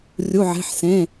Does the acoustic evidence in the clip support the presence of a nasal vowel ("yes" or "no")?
yes